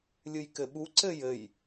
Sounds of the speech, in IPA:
lʲ ɨ j k ɘ ɓ u ǀ ɘ j ɘ j

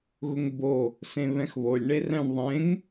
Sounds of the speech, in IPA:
ɣ ʊ ŋ b o | s ẽ β ɛ̃ x β o lʲ ɳ e r ɛ̃ ɳ ðˤ ẽ ŋ

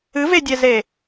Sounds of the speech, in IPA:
ɨ v e dʲ ɛ z e

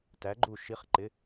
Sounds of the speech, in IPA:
t æ˨˥ ɡ͡ǃ u˧˩ ʃ i˨˥ χ ǃ ɪ˨˥

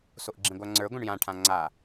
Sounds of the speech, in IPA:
s o ʔ ɡ͡ǁ ĩ ɡʷ a ŋ͡ǀ ə˞ ɡʷ ɛ̃ ɳ j ã ʈʰ ã ŋ͡ǀ a

